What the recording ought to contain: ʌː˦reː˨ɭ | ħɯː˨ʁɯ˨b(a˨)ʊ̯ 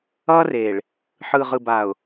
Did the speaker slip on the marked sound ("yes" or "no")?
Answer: no